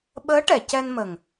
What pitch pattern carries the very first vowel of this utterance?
rising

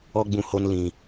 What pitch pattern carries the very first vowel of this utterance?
high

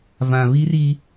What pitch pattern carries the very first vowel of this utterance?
low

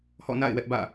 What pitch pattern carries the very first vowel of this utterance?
falling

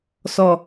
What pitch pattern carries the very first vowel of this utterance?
low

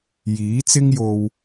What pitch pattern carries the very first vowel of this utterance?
rising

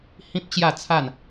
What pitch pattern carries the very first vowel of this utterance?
high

